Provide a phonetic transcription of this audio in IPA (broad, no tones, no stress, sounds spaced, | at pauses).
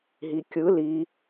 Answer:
ɦ i kʲ ɯ l i